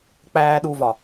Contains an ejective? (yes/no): no